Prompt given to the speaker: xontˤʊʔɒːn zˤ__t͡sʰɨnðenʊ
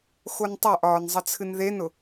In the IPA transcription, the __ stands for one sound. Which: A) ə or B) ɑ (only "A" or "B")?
A